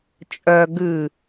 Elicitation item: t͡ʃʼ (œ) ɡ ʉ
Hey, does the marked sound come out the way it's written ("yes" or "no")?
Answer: yes